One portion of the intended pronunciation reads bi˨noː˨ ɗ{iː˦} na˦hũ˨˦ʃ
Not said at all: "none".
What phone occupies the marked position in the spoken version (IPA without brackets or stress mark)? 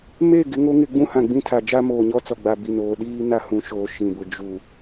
iː˦